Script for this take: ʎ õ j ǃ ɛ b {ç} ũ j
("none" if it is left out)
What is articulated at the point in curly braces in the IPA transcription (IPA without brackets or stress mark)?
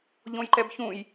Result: ç